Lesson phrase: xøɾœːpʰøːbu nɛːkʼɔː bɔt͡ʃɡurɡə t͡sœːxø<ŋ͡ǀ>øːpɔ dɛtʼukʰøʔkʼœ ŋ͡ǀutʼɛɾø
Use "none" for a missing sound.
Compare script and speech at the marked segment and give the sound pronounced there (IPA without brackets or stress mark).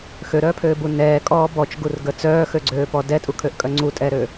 ɡ͡ǀ